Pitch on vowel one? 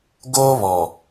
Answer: high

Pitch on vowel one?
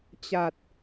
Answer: low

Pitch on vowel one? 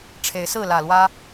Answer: rising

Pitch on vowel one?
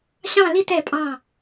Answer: falling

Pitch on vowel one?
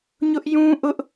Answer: high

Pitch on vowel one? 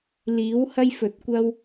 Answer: rising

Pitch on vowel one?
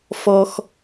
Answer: high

